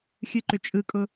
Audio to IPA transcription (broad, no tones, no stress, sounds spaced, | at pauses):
xʲ ɨ ǃ ʏ t͡ʃʼ ɯ kʼ ʊ